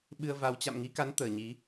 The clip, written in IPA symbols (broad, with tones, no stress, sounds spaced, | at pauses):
ɓ ɨ˧ ə̯ v a˨˦ w t͡ɕ a̰˧˨ m ŋ i˨˦ k a˨˦ n t̪ əː˧˩ ɲ i˨˦